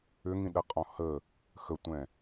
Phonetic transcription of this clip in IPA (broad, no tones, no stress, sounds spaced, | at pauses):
ʏ ŋ ĩ ɗ ə qʼ ɔ̃ h ə | x ə tʷ ɛ̃